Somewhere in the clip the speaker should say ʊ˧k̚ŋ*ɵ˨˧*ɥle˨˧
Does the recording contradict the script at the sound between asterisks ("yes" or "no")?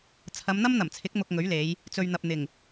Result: yes